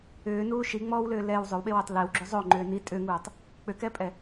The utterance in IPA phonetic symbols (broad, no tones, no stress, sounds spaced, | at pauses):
ʏː n uː ʃ i ŋ͡m ɔː w l ʏː l ɛ w zˤ ʏ w ɓ e w ʏː tˤ l e w ɡ͡ǁ ʏ zˤ o ŋ͡ǃ ʏː n i tʼ ʏ ŋ uː tˤ | k͡p ʏ k ɛ pʼ ɛ